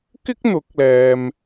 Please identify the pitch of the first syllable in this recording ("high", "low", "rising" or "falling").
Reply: high